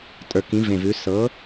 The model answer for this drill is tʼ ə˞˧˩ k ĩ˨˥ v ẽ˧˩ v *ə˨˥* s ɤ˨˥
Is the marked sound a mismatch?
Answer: yes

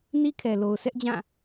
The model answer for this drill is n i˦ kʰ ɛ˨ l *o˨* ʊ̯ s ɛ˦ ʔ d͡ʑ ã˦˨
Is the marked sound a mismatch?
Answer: no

